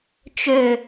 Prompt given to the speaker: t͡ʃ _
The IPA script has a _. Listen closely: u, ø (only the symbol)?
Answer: ø